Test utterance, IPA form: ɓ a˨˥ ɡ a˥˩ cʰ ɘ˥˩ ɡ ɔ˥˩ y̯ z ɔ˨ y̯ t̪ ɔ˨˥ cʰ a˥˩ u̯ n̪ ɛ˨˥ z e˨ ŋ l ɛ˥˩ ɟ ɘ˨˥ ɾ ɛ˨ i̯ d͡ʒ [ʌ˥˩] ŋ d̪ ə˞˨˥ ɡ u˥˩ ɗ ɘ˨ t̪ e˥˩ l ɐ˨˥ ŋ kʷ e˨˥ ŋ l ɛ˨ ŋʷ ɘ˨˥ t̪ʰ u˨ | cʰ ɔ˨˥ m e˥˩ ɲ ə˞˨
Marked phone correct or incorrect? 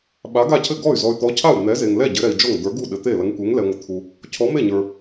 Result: incorrect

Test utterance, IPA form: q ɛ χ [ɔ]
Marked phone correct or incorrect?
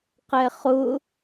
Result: incorrect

